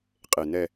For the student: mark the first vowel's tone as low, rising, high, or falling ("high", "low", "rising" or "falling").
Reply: low